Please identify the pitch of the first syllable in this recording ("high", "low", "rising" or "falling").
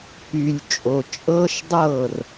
low